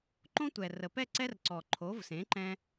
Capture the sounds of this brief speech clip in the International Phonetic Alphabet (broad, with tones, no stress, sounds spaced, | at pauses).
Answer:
ǃ õ˦ tʷ ɛ˩ r ə˩ p ɛ˥˨ ǀ ɛ˦ r ǀ ɔ˩ ǃʰ o˩˧ v s ẽ˩˧ ǃ ɛ̃˦